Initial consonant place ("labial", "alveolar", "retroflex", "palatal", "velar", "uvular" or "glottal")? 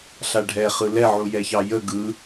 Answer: alveolar